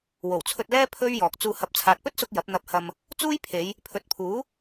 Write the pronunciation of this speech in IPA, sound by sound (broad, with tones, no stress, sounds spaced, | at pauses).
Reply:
w o˨˩ w t͡sʰ ɵ˧ t̚ l ɛː˥ pʰ ɵ˥ ɥ j ɔː˨ k̚ t͡s uː˧ h ɐ˨˥ p̚ t͡sʰ aː˨ t̚ p ɵ˥ t̚ s ʊ˧ k̚ j ɐ˨˥ p̚ n̪ ɐ˧ p̚ h ɐ˧ m | t͡s uː˥ j pʰ e˨˧ j | pʰ ɵ˨ t̚ pʰ uː˨˥